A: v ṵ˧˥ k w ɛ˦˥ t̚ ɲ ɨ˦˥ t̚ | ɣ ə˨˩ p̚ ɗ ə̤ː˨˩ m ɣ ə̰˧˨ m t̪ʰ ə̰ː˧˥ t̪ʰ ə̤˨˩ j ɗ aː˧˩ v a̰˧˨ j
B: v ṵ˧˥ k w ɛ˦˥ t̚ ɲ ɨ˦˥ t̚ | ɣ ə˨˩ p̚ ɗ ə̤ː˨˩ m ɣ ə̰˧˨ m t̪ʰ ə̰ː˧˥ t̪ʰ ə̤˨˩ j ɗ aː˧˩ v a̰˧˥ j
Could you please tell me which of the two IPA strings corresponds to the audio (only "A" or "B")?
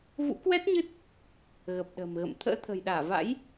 B